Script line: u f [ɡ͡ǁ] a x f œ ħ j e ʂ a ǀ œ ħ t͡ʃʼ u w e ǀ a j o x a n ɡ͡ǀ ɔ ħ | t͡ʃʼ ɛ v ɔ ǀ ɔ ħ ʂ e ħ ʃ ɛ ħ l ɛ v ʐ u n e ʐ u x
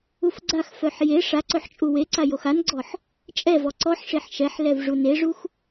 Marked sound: incorrect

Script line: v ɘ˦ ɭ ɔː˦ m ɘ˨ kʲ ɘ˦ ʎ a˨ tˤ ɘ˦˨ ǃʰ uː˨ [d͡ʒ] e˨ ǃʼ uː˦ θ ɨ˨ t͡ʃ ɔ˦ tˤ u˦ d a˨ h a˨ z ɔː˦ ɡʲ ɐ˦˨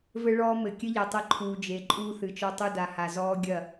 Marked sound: correct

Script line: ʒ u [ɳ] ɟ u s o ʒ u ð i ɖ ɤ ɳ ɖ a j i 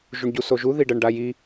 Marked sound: correct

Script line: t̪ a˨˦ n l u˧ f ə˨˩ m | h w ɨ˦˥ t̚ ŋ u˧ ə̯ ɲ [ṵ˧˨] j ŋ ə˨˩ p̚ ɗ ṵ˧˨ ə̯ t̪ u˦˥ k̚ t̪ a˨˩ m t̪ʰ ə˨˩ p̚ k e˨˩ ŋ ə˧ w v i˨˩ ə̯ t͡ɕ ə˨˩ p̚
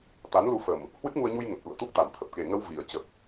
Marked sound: incorrect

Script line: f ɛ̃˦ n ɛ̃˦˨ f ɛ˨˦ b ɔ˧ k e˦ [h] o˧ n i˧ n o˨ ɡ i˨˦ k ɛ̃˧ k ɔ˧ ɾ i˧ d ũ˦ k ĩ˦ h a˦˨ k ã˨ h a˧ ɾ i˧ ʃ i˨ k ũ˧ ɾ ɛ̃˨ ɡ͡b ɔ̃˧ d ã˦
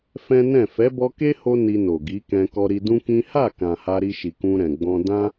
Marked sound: correct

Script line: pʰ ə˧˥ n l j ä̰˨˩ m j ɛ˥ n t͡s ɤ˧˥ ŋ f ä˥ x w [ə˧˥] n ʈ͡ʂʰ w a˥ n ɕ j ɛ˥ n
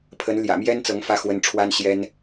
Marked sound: correct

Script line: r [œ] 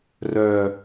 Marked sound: correct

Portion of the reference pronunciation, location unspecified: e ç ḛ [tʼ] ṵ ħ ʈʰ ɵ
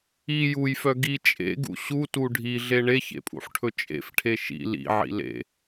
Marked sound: incorrect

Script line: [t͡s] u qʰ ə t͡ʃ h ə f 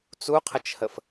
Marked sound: correct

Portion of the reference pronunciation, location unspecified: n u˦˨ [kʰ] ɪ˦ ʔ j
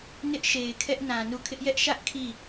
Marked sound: correct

